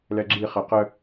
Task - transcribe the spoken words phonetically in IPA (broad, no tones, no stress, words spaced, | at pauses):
lɛɡ͡ǁi χɛqə